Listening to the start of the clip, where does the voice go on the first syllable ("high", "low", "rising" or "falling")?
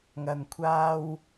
low